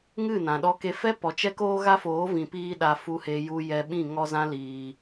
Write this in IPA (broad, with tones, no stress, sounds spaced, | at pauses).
ŋ ɨ˦˨ n ã˨ ɗ ɔ˧ k e˧ f ɛ˦ p ɔ˨ t͡ʃ ɛ˧ k oː˧ ɣ a˦ f oː˨˦ v ĩ˨ p iː˧ ɗ a˨ f u˨ h e˨ j u˨ j ɛ˨ ɓ ĩ˦˨ ŋ ɔ˧ z ã˦ l iː˧